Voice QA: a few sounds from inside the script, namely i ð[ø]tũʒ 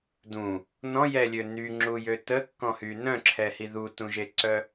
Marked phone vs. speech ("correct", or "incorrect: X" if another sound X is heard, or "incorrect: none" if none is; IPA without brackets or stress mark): incorrect: u